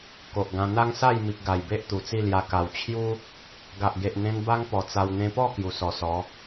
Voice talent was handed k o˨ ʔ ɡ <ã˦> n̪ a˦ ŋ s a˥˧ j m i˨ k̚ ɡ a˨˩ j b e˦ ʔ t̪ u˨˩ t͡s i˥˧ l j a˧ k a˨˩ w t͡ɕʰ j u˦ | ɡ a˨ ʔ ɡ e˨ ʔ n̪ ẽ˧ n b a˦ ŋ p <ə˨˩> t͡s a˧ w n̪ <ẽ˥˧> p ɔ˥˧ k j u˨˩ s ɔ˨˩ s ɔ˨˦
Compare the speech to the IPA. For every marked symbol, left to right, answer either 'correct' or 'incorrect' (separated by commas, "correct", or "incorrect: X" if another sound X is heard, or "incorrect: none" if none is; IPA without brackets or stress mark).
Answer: incorrect: ã˧, incorrect: ɔ˨˩, incorrect: ẽ˧